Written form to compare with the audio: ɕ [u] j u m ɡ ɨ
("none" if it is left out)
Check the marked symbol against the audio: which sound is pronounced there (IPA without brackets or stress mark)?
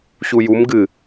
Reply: u